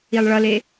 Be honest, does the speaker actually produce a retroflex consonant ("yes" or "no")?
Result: yes